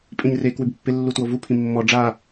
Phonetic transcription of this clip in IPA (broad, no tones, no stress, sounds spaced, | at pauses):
pʼ ĩ ɲ r e k w ʉ b pː ɪ lː u t w o v u pʰ ĩ mː ɔ ɖ͡ʐ a